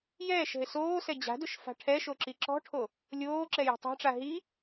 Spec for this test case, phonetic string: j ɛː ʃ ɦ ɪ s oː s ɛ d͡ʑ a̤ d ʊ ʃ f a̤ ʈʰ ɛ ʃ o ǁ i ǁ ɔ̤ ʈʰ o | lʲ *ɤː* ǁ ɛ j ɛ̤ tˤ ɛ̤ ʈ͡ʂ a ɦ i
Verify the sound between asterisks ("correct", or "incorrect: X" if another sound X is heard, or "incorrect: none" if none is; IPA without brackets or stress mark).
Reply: incorrect: oː